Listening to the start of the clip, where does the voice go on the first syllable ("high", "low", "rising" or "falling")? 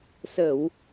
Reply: low